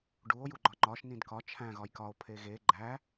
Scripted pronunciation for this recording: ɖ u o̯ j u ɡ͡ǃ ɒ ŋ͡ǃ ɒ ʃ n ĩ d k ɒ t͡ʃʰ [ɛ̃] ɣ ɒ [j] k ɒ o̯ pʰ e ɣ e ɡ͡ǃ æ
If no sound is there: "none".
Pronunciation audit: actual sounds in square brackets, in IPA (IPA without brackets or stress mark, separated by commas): æ̃, j